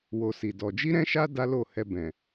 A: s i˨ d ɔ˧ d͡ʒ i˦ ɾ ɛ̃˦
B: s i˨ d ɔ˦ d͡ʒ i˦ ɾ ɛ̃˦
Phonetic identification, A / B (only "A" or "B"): A